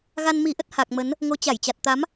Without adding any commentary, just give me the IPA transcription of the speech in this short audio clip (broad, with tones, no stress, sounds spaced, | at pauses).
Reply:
ɣ a˧ n m i˨˦ ʔ ə˦˥ t̚ h a˨˩ k̚ m ə˨˦ n | ŋ o˨˦ t͡ɕ a˧˩ j t͡ɕ a˨˩ t̚ t̪ a˨˦ m